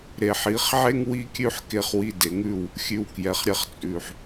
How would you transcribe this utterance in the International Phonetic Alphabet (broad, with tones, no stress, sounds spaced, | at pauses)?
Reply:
ɾ e˨ ħ i˨˦ χ ʕ e˦ ŋ w i˦ kʲ ʉ˦ ħ k e˧ χ w i˧ d e˨ ŋ ʉ˦˨ w | xʲ ʉ˨ w k j ɛ˨ χ ɾʲ ɛ˧ χ t͡sʼ ʉ˨ ħ